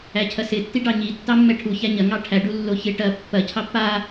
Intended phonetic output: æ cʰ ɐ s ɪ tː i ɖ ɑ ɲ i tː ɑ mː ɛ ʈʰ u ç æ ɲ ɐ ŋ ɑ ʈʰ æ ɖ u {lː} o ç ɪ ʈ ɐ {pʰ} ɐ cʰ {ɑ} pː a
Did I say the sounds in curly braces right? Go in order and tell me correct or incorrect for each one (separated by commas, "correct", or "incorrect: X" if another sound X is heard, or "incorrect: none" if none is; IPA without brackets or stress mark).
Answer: correct, incorrect: pː, correct